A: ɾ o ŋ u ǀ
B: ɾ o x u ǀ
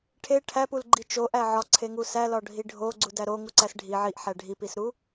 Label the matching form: A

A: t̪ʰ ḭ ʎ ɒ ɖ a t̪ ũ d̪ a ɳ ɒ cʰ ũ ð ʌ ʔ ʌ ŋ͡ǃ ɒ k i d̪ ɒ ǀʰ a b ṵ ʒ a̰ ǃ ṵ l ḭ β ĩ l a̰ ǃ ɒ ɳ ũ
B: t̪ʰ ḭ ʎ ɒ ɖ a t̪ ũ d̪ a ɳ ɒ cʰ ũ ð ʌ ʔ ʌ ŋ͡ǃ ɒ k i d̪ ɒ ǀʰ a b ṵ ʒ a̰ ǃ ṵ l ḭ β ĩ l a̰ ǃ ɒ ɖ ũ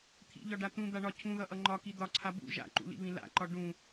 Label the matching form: B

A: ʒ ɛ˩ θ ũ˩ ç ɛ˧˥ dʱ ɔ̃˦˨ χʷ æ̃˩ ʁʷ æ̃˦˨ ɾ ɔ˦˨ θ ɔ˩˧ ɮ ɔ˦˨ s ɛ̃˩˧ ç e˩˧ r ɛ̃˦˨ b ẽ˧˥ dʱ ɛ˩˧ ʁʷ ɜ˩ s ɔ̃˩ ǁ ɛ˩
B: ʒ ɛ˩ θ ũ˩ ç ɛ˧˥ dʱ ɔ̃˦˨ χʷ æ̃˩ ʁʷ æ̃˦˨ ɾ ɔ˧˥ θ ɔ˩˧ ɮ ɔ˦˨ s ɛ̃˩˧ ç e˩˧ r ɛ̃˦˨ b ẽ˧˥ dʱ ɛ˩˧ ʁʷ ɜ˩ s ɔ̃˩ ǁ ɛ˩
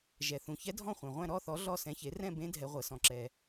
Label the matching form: A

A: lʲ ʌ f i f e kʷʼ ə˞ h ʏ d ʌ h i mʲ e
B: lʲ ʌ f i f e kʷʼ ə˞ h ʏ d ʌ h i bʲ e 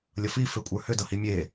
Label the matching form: A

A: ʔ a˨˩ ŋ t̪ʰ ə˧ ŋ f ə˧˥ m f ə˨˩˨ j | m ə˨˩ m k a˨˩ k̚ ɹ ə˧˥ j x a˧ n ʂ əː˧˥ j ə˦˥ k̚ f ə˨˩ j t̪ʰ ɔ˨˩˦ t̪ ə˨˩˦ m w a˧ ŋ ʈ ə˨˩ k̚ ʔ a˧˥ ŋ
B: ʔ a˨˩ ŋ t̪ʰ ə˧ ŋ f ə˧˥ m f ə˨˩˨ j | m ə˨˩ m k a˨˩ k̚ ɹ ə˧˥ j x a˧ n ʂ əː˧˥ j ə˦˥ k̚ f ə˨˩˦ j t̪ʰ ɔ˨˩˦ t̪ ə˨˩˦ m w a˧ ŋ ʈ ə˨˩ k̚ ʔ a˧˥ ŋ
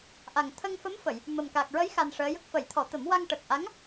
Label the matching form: B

